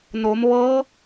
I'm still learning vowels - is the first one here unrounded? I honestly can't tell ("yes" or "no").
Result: no